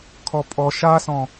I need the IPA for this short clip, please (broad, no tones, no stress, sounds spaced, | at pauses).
kʰ ɔ pʼ ɔ ʃ a s ɔ̃